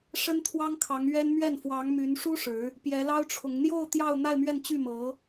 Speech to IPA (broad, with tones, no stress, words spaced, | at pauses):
ʂə˥nt̪ʰwɑ˥ŋkʰɑ˧˥ŋ ɥɛ˥n mɥɛ˥˩n fwɑ˧˥ŋmy˧˥nʂu˥ ʂɻ̩˧˥ | pjɛ˧˥lɑ˥ʊ̯ʈ͡ʂʰʊ˧˥ŋ n̪jo˥˧ʊ̯ t̪jɑ˥˧ʊ̯ n̪a˥˧ɪ̯mɥɛ˥˧n t͡ɕy˥˩mɤ˧˥